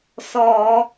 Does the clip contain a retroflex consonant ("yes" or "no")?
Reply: no